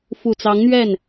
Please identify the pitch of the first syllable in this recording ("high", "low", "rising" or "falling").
low